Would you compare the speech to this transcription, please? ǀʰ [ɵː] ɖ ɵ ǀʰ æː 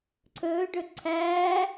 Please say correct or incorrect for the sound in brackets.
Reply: correct